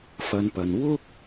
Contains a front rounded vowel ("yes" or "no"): no